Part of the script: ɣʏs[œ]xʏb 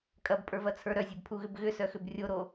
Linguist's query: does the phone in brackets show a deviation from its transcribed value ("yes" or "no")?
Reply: no